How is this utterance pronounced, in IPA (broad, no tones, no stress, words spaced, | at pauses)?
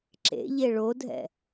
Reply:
ǁḛ ʎeɭodʱɛ̰